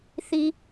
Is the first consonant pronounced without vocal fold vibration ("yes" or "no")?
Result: yes